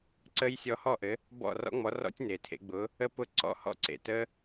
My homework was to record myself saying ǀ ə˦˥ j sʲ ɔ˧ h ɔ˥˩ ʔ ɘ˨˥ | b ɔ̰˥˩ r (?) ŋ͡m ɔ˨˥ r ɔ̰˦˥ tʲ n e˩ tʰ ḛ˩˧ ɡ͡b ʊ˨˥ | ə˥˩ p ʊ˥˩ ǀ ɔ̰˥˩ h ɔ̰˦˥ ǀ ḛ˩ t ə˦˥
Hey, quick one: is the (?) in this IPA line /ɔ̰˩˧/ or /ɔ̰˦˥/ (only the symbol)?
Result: ɔ̰˦˥